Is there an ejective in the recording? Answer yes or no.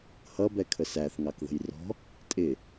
yes